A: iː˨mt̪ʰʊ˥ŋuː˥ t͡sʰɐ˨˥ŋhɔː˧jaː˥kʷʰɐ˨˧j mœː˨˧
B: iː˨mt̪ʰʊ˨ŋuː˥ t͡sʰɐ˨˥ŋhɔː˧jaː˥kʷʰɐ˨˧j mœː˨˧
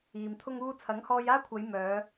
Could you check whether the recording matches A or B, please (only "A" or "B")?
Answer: A